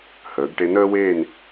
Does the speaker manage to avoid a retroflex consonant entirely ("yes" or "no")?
no